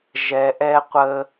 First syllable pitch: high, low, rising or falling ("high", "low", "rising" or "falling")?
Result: low